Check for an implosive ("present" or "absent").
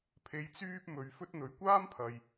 absent